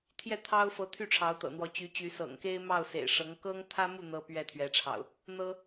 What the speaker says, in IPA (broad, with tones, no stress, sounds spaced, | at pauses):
t̪ʰ j ɛ˥˨ t̪ʰ ɑ˦ ʊ̯ f ɤ˨˦ t̪ʰ y˥˨ ʈ͡ʂʰ ɑ˨˦ ʊ̯ t̪ ɤ̰˨˩ n̪ w ɔ˨˦ t͡ɕ y˨˦ t͡ɕ y˨˦ s ɤ̰˨˩ ŋ k e˦ ɪ̯ m ɑ˥˨ ʊ̯ s ḛ˨˩ ɪ̯ ʂ ɤ˨˦ ŋ k ɤ˦ ŋ t̪ʰ ä˦ m u˥˨ n̪ ɤ˦ p ɥ ɛ˥˨ t̪ʰ ɥ ɛ˨˦ ʈ͡ʂʰ ɑ̰˨˩ ʊ̯ | n̪ ɤ˦